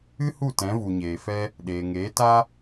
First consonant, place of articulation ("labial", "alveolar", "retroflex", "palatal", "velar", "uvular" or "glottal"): glottal